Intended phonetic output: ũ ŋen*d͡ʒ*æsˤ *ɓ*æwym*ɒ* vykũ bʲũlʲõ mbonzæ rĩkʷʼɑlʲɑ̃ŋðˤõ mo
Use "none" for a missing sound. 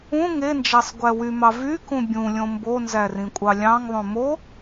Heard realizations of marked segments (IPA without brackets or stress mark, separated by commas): d͡ʒ, ɡʷ, ɑ